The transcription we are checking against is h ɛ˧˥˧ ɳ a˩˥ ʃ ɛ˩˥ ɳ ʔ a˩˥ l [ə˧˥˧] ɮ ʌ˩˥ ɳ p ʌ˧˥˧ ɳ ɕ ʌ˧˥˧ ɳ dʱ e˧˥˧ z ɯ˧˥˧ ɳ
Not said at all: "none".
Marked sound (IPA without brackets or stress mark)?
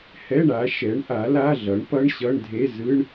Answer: a˧˥˧